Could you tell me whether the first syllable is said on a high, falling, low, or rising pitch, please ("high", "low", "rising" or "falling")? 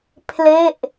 falling